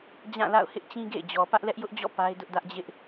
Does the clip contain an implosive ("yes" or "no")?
no